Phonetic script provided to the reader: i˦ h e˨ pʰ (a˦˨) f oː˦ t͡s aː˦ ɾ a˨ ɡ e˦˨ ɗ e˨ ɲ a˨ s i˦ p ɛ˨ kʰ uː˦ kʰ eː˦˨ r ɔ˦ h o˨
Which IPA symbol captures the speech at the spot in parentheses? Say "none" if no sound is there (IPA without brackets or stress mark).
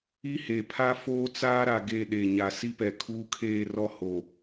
a˦